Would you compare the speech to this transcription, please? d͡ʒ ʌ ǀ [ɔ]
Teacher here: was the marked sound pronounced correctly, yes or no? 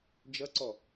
yes